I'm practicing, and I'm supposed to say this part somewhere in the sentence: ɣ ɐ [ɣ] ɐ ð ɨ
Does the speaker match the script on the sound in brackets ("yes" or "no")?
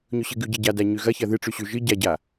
no